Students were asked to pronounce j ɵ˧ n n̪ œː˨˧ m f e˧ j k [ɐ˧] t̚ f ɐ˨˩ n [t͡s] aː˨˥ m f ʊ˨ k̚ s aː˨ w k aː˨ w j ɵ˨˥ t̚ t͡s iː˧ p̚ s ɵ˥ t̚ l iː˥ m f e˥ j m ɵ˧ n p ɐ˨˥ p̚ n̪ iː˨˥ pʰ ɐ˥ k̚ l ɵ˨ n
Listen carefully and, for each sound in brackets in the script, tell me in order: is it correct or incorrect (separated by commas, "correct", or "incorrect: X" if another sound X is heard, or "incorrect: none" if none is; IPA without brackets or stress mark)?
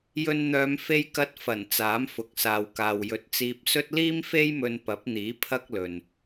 correct, correct